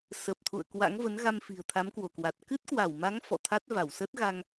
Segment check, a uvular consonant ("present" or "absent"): absent